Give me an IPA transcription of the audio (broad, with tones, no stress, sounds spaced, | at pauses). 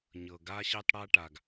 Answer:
ɲ ɤ˩ ɡ a˥ ɕ e˥ tˤ ɽ a˥ ʈ a˩ ɡ